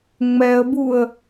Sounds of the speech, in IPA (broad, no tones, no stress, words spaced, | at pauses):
ŋ͡mɛə̯buə̯